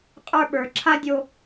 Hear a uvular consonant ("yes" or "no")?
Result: yes